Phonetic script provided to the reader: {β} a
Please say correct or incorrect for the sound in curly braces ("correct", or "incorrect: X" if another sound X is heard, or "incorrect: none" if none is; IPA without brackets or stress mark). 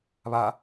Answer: correct